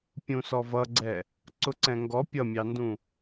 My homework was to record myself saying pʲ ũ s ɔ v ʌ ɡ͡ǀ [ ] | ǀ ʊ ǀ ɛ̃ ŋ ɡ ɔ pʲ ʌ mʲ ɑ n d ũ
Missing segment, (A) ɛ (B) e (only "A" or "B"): A